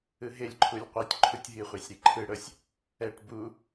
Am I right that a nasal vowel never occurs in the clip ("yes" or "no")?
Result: yes